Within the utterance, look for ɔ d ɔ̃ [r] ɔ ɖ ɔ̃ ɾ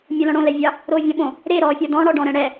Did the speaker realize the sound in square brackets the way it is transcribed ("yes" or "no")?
no